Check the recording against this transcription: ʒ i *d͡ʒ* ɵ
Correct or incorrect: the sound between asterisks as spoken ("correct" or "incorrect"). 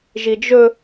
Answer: correct